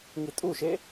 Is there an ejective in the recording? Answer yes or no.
yes